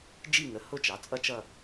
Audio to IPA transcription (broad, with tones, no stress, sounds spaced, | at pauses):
d͡ʒ i˦˨ ŋ ə˩˥ h ʊ˦˨ t͡ʃ ɑ˩˥ t͡sʼ ʌ˦˨ t͡ʃ ʌ˦˨